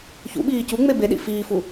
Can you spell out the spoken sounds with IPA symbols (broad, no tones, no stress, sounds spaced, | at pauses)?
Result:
ç ṵ ɓ iː c u ŋ͡m e b e ɗ ḭ f iː f u